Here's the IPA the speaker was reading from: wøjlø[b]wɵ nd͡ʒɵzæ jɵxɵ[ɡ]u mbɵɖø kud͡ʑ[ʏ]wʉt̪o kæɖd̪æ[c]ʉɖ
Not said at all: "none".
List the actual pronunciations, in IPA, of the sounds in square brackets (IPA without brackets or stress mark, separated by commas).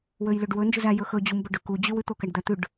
ɖ, d͡ʑ, y, t̪